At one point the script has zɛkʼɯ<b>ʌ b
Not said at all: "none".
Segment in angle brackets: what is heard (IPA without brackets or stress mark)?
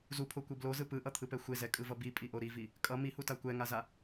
v